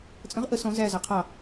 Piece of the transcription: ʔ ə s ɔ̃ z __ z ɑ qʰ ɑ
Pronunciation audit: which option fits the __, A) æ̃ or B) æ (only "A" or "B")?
B